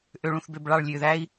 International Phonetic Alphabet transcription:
ʔø˧ɭũ˧θbø˧b ɭɑ˥˧ɭlʲø˧ðæ˥i̯

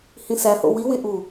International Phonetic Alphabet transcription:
hĩsæ ho̰wi wĩʔu

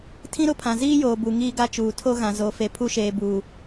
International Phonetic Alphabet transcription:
tʰĩ˦ɾʊ˦pʰã˨ ziː˦joː˨bu˨ ŋiː˦ɡa˦t͡ʃuː˨ tʰo˦ɣã˨zo˨˦ fe˨pʰu˦ʃeː˨ buː˨

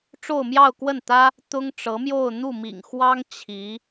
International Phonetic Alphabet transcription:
ʈ͡ʂo˥˧ʊ̯mjɑ˥˧ʊ̯kwə˥˩nt̪ä˥ | t̪ʊ˥ŋʈ͡ʂɤ˧˥mjo˥˧ʊ̯ n̪u˥˩mḭ˨˩ŋxwɑ˥ŋ t͡ɕʰi˧˥

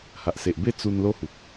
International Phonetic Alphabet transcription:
ha˨ʔse˨ʔbe˥˧ t͡su˧nlo˦hu˨k̚

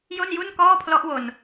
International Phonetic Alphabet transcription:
jo˥˩nju˥˩nkɔː˥˩pʰlɔ˦˥ʔ wo˧n

